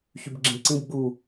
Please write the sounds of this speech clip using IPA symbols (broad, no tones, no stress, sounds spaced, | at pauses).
ç y b ɡ͡ǁ ĩ b ǀ ĩ b ɡ͡b u